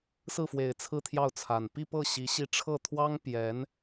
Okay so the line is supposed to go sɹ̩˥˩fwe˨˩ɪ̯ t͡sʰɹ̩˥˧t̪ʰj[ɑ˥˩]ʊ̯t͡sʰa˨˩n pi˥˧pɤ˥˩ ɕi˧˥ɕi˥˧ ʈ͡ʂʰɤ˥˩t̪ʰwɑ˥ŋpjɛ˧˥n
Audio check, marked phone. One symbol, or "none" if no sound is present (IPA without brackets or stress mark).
ɑ˥˩